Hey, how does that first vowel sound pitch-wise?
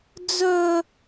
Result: high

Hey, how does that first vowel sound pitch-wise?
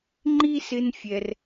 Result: high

